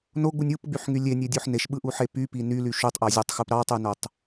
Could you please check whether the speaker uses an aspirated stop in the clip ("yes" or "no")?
no